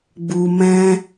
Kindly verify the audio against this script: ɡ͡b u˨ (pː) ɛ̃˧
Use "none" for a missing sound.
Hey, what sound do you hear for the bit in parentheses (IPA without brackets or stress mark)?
m